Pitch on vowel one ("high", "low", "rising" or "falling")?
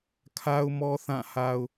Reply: high